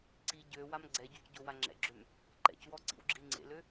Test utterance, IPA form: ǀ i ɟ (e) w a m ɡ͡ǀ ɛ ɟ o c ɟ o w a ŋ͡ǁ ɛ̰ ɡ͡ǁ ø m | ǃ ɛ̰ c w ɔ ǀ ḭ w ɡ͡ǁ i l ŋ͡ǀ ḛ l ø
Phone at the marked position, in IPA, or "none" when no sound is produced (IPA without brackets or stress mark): ø